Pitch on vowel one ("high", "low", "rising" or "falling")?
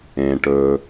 low